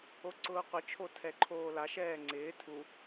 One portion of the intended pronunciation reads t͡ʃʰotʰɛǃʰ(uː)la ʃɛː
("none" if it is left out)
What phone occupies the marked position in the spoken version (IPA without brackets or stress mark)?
oː